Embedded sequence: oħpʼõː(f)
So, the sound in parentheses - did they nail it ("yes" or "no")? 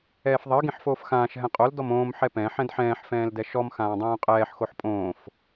yes